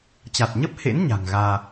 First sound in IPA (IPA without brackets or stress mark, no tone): t͡ɕ